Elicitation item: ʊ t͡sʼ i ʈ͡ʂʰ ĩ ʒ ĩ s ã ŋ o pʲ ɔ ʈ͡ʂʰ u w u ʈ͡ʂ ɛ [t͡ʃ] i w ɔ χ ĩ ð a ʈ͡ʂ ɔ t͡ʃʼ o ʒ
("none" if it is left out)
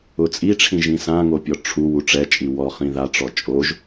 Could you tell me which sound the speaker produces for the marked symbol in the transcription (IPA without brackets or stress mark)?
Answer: t͡ʃʼ